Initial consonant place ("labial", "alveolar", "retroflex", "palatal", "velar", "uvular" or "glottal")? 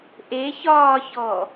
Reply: glottal